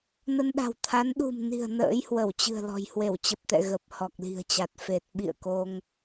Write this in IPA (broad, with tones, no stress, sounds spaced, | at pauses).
n ə˧ n ɗ a̤˨˩ w t̪ʰ a˨˦ n ɗ ṳ˨˩ m n i̤˨˩ ə̯ n ə̰ː˧˥ j h w ə˧˩ w t͡ɕ ɨ̤˨˩ ə̯ l ɔ̤˨˩ j h w e˧˩ w t͡ɕ ə˨˩ p̚ t̪ ɛ̰˧˨ ɣ ə˨˩ p̚ h ɔ˨˩ k̚ l i̤˨˩ ə̯ t͡ɕ a˨˩ t̚ f e˨˩ t̚ ɓ ḭ˧˨ ə̯ k o˧ ŋ